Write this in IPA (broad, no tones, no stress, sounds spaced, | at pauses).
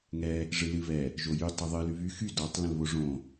ŋ ɛ | ʐ ɨ l ɨ β ɛ | ʒ o j y tˤ ɨ ðˤ ɨ l y β y x y d ɔ tˤ l ə̃ l β o ʐ õ